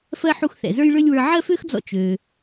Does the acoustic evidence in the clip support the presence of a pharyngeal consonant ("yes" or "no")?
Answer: yes